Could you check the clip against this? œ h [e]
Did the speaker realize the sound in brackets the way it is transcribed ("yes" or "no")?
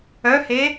yes